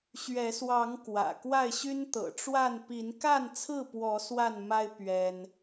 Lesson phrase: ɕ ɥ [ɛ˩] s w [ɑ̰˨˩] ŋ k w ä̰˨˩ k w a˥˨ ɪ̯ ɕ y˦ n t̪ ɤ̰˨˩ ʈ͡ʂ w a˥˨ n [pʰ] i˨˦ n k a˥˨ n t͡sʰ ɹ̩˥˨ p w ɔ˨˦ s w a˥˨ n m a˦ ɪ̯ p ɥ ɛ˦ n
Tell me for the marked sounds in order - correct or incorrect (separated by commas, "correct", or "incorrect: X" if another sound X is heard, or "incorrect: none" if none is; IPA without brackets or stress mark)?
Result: incorrect: ɛ˨˦, incorrect: ɑ˨˦, incorrect: p